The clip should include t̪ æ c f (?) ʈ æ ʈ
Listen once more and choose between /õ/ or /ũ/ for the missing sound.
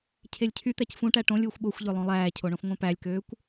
ũ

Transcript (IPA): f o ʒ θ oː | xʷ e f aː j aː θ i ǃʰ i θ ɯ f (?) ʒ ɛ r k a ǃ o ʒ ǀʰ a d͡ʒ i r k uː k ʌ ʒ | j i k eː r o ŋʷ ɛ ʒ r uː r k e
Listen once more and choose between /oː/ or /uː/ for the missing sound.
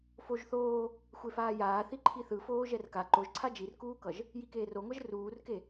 oː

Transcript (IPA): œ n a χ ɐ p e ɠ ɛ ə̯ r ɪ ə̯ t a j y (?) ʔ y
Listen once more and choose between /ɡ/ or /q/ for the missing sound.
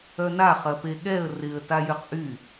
q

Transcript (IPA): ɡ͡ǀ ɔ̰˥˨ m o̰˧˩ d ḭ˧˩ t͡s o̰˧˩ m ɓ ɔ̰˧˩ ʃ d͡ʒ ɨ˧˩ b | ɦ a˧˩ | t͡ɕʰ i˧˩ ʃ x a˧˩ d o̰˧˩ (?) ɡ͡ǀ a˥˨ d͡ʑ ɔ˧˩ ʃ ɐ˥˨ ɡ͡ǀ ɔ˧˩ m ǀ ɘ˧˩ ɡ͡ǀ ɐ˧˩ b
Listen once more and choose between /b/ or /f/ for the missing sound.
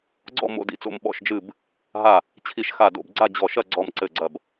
b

